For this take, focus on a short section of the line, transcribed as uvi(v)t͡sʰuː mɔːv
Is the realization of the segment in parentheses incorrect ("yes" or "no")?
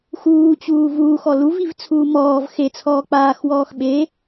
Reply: no